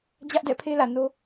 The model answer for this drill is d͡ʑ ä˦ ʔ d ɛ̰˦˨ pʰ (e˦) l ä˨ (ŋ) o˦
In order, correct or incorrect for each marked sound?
correct, incorrect: n

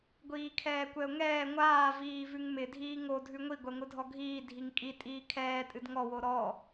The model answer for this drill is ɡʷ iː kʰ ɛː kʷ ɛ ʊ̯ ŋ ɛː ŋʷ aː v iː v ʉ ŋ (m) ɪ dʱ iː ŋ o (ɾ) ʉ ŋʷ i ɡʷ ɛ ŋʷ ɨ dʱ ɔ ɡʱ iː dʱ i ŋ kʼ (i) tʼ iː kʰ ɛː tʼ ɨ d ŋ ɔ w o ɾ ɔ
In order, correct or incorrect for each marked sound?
correct, incorrect: dʱ, correct

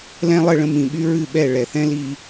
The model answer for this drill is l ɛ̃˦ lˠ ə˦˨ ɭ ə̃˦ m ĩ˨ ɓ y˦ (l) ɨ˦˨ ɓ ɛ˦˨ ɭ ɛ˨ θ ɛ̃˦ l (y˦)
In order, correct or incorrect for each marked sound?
incorrect: ɹ, incorrect: i˦

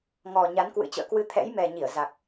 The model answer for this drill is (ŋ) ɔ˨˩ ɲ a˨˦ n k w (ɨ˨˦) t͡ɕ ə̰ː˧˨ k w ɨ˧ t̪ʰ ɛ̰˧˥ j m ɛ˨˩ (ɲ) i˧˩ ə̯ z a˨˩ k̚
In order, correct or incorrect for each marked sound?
correct, incorrect: ɨ̰˧˥, correct

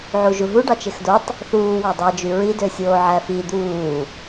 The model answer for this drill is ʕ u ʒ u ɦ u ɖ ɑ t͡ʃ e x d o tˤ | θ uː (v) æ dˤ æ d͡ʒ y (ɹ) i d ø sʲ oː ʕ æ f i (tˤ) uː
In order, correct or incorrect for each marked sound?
incorrect: w, correct, incorrect: d̪

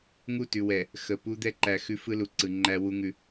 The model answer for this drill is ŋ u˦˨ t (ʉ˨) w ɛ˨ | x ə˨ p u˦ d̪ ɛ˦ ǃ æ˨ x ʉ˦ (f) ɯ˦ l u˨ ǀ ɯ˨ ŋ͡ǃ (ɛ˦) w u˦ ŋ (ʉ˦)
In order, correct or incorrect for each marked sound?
correct, correct, incorrect: æ˦, correct

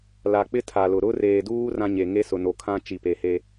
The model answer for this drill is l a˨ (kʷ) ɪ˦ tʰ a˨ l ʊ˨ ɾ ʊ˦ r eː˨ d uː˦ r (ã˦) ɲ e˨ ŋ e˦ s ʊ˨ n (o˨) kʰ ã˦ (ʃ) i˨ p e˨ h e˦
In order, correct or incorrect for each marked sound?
incorrect: k͡p, correct, correct, incorrect: t͡ʃ

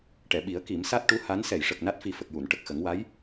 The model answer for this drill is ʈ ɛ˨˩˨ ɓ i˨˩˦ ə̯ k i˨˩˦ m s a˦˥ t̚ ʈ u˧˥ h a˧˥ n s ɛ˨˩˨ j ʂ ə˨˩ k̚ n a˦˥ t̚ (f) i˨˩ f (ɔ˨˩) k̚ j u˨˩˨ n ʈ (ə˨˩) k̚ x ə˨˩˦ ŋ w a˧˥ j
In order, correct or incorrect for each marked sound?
correct, incorrect: ə˨˩, correct

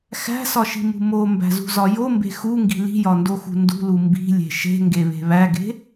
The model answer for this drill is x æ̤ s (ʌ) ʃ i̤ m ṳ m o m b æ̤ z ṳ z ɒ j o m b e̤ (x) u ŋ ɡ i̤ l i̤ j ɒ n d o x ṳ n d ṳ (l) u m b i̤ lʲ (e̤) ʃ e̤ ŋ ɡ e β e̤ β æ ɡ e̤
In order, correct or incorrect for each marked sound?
incorrect: ɒ, correct, correct, correct

